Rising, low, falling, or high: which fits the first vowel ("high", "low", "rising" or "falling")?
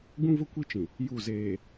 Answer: high